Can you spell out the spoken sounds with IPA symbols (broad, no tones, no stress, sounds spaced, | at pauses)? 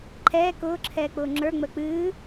ǃʰ ɛː k ʊː ǁʰ ɛː k͡p ʊː ŋ͡ǁ ə˞ ŋ͡m əː k͡p ɨː